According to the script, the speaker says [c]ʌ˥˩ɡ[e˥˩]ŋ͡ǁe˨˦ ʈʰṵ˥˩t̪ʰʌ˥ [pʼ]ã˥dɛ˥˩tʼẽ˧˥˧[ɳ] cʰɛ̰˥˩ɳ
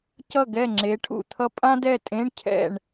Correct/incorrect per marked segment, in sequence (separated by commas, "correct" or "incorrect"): correct, incorrect, correct, correct